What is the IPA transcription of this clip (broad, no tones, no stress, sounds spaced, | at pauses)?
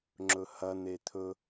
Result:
ŋ͡ǁ ɵ h ɐ n̪ e t̪ʰ ɵ